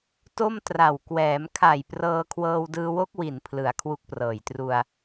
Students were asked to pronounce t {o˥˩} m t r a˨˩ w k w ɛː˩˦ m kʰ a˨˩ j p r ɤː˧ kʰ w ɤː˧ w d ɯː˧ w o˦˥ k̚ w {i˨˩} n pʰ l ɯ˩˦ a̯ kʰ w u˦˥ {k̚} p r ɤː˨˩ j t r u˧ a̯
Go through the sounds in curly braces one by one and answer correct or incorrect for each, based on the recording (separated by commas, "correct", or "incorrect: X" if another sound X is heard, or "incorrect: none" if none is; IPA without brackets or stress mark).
correct, correct, correct